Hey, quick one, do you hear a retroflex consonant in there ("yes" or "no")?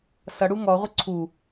yes